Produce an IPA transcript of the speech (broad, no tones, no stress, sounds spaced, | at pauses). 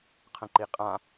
qʰ ə̃ ǃ i qʼ ã